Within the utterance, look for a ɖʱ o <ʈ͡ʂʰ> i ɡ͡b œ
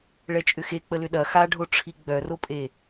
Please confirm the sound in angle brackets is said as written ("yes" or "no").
yes